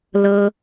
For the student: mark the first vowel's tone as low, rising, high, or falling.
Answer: high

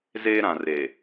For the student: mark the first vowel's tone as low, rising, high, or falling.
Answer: high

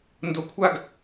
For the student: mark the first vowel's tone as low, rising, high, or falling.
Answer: low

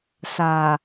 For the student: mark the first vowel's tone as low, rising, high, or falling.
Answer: low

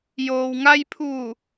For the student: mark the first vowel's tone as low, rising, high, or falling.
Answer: low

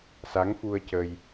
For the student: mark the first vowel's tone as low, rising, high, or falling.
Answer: rising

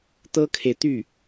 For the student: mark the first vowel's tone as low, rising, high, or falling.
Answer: high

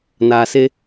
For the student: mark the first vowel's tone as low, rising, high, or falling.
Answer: low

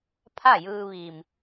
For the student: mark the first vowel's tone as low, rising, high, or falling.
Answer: falling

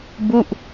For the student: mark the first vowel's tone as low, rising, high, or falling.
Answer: falling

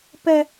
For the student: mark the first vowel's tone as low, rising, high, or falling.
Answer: high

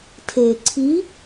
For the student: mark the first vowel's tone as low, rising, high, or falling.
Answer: low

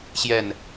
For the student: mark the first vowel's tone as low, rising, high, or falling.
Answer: falling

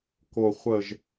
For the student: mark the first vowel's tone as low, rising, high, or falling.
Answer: low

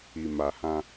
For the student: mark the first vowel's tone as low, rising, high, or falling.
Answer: low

